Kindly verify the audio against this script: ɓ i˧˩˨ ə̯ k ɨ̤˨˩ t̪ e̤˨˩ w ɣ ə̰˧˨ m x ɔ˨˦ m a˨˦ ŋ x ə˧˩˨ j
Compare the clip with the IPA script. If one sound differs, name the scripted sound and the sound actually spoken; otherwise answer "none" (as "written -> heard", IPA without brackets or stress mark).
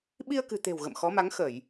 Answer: i˧˩˨ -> i˧